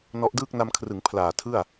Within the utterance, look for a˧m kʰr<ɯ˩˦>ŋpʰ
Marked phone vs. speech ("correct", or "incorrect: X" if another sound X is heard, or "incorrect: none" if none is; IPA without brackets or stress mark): correct